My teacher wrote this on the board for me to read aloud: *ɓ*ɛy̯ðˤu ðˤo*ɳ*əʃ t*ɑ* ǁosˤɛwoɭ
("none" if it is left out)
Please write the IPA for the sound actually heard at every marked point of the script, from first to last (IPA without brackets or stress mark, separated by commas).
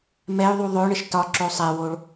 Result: m, ɳ, ɒ